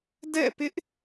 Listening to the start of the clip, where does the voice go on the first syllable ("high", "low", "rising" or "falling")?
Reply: falling